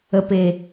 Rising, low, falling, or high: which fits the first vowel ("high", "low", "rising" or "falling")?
low